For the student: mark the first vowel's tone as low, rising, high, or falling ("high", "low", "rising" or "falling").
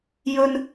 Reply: high